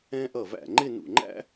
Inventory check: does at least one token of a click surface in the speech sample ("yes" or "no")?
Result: yes